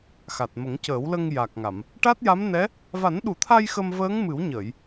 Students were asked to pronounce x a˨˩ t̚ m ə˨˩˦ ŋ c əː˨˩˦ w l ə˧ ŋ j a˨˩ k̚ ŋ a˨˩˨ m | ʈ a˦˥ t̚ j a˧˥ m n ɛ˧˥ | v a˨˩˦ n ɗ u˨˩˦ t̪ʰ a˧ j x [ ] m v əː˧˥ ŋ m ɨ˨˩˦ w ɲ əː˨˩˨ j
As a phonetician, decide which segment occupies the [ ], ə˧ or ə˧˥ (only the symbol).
ə˧